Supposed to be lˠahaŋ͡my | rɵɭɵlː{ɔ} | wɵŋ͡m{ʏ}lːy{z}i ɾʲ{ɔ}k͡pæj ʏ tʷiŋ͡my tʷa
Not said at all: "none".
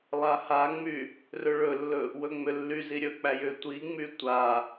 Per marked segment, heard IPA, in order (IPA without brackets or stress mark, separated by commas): ɵ, ʏ, z, ɵ